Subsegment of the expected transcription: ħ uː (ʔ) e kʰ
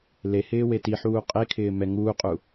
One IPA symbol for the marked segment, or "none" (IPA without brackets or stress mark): qʼ